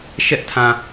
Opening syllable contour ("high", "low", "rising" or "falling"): high